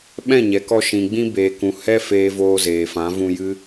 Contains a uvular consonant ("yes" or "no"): no